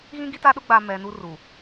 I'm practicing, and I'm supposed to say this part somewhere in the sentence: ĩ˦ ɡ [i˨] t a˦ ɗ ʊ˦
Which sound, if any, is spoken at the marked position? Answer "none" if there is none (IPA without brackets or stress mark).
i˦